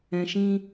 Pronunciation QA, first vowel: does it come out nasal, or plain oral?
nasal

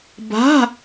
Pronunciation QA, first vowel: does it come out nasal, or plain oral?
oral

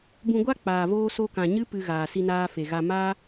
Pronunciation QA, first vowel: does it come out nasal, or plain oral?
nasal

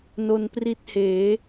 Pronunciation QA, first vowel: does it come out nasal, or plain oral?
oral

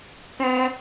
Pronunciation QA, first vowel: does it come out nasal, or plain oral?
nasal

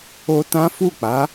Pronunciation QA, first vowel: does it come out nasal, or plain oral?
oral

